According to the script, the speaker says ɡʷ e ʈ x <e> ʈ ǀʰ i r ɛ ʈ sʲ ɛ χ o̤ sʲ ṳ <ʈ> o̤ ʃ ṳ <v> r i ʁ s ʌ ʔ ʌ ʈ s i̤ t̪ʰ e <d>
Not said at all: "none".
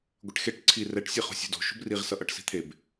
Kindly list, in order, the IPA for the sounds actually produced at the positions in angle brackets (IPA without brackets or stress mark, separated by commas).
e, d, b, b